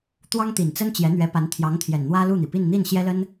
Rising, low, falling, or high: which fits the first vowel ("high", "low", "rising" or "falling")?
high